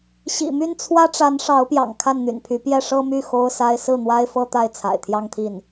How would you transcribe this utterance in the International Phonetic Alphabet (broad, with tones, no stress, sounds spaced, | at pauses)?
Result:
ɕ ḭ˨˩ m y˥˩ n t͡sʰ w ä˥ ʈ͡ʂ a˧˥ n ʂ ɑ˧˥ ʊ̯ p j ɑ̰˨˩ ŋ kʰ a˥˩ n n̪ y̰˨˩ n pʰ y˧˥ p j ɛ˥˩ ʂ ɤ˥ m y˥˩ x o˥ ʊ̯ s a˥ ɪ̯ s ɹ̩˥˩ n̪ w a˥ ɪ̯ f ɤ˥ t̪ a˥˩ ɪ̯ t͡sʰ a̰˨˩ ɪ̯ t̪ʰ j ɑ˥˧ ŋ t̪ʰ i˥˩ n